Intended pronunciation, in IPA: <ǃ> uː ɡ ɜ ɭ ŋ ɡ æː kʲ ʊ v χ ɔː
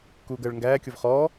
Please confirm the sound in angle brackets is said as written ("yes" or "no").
no